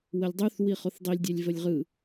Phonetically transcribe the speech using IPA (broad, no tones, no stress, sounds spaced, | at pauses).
w ə lʲ dˤ ʉ θ w i χ o θ dˤ i lʲ dʲ ɛ lʲ v ə lʲ ʁ ɯ